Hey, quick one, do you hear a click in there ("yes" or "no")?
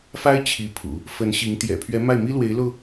no